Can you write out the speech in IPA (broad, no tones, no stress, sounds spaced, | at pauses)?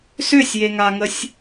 s ʏ sʲ j e ŋ a ŋ ə sʲ